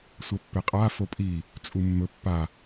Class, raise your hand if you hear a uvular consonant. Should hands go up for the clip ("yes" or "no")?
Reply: yes